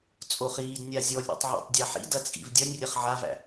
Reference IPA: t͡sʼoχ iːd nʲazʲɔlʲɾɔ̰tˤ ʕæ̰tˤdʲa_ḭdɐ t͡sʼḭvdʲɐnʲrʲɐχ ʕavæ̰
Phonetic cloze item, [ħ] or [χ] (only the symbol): ħ